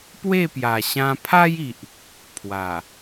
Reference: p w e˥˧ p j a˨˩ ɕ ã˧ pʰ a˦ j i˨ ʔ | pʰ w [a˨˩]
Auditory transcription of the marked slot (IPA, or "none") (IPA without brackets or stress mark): a˨˩